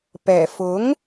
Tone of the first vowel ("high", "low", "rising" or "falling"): low